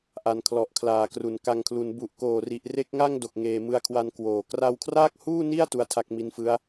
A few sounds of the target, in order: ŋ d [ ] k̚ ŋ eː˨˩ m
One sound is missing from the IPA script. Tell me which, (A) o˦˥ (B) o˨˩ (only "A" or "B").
B